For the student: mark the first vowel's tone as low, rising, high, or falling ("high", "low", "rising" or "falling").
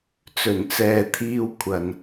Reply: low